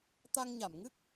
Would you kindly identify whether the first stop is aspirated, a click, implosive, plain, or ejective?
plain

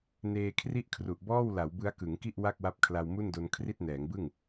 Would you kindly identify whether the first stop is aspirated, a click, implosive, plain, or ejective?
aspirated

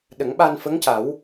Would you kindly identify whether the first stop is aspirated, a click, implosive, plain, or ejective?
implosive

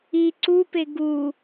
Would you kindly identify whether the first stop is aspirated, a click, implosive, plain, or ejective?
click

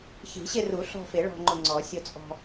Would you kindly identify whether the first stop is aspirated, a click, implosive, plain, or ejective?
click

